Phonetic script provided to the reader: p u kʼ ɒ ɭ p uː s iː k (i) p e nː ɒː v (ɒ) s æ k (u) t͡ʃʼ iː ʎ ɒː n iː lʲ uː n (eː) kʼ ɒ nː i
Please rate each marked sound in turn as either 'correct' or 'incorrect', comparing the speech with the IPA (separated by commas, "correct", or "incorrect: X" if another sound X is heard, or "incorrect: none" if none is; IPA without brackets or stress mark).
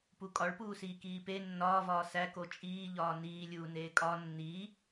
incorrect: iː, incorrect: ɒː, incorrect: o, correct